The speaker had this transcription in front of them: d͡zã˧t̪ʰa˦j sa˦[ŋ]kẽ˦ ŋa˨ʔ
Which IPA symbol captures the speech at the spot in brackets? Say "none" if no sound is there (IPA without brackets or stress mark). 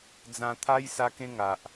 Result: none